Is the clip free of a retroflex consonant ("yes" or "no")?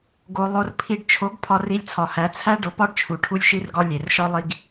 no